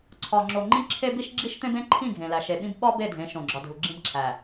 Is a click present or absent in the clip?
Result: present